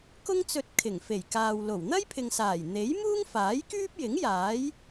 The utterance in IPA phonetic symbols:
k ʊ˥ ŋ t͡s ɵ˧ t̚ kʰ ɪ˨˩ ŋ f e˨˩ j k aː˨ w l o˨˩ w n̪ ɐ˥ j pʰ ɪ˨ ŋ s aː˨˩ j n̪ e˨˥ j m uː˥ ŋ f aː˨˥ j k yː˥ p̚ j ɪ˨˥ ŋ j aː˨˥ j

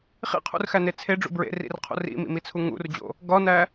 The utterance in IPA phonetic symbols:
χ ḭ qʰ ṵ r x æ n e t͡sʰ e ɖ͡ʐ ṵ b ɹ ḛ r ḭ r qʰ o̰ r ḭ m ḭ m i t͡sʰ u ŋ ṵ r d͡ʑ o̰ | ɡ ɒ n æ

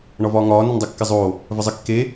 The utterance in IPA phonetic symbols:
ɳ ɒ v ɒː ŋ ɒː n e n dˤ y kː ɪ zˤ oː | v ə zˤ ɪ kː e

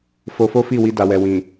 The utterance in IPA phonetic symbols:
f o˧ f o˦ f i˦˨ w i˧ d a˨ w ɛ˨ w ĩ˨

